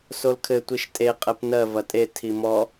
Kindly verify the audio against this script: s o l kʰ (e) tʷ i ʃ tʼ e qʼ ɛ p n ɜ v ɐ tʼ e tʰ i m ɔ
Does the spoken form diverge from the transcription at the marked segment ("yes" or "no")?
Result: yes